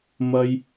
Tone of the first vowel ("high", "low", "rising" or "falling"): high